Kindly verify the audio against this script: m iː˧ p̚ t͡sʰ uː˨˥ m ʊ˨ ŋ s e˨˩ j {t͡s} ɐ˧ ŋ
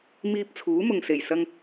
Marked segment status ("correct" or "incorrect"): incorrect